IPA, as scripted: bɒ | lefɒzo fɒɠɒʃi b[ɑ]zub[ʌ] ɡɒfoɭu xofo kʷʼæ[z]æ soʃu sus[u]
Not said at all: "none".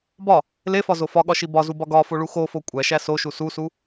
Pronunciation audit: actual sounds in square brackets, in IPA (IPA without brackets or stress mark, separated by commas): ɒ, ɒ, ʃ, u